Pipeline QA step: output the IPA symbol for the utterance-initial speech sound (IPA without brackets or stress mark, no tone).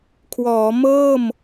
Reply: kʰ